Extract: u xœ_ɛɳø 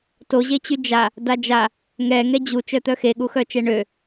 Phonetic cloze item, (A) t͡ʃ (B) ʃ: A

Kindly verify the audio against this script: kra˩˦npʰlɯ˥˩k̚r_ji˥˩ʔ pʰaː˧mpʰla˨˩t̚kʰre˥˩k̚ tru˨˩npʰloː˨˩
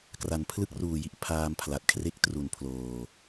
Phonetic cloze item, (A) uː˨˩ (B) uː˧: A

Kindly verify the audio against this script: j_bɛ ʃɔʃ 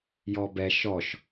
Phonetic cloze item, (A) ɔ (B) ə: A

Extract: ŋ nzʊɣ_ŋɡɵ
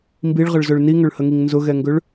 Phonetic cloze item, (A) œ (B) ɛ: B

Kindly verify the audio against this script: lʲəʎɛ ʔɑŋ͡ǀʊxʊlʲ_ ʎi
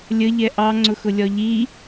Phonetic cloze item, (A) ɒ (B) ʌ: A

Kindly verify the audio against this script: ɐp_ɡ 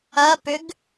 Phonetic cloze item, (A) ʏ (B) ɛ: A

